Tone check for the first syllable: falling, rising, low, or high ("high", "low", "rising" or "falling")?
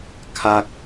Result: high